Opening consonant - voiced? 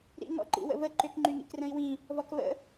yes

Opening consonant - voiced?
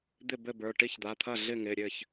yes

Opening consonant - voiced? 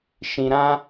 no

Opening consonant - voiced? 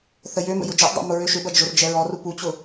no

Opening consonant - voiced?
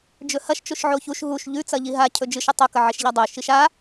yes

